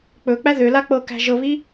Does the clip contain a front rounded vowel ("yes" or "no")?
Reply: yes